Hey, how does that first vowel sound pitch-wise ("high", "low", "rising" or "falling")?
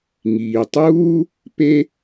low